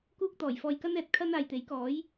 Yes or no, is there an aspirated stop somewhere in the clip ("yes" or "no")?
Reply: yes